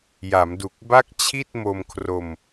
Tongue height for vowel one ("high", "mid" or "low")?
low